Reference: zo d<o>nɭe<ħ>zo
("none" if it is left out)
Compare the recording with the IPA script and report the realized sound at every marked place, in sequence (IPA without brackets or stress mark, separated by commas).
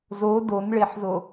o, ħ